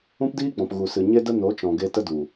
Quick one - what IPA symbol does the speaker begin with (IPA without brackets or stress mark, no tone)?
ũ